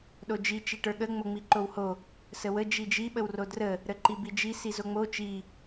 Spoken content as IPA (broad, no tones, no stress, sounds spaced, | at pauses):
ɗ o d͡ʒ i t͡ʃ i ʈ ə˞ ɠ ə ŋ͡m o ŋ͡m i ǃ o w h o | s ə w ə d͡ʒ i d͡ʒ i ɓ ə w r o d r ə | ɾ ə ǃ i b i d͡ʒ i s i z o ŋ͡m o t͡ʃ i